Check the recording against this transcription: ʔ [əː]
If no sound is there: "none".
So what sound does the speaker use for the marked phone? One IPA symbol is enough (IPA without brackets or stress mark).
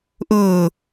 ʊː